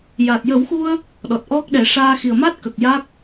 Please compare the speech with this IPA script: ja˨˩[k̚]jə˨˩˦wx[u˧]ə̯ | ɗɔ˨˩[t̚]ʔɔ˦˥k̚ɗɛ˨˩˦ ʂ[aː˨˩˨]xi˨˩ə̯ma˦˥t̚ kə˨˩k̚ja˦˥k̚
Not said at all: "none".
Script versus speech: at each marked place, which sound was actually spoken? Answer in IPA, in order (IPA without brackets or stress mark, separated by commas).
t̚, u˧, t̚, aː˧